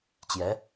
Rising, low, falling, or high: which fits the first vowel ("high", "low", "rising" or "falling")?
rising